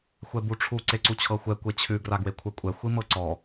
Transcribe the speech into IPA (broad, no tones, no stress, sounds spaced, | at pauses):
xʷ ɛ b u ʈ͡ʂʰ u ǀ e ǀ u t͡ɕʰ ɤ xʷ ɛ kʷ e t͡ɕʰ ʉ ɡ r a ɡ w e kʷʰ ɛ kʷʼ ɛ xʷ i m ɤ ǀ ɔ